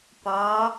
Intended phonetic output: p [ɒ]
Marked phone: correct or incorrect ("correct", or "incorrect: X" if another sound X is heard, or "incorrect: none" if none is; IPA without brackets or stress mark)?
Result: correct